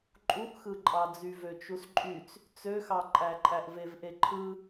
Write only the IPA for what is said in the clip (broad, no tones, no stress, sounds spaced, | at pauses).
ǃʼ u ʔ x ɯ ǃʼ ɑ d͡z y v ø t͡ʃ u s ǃʼ y t͡s | t͡s ø x ɑ ǃʼ æ ǃʼ æ ʔ v e v ʔ e ǃʰ ɯ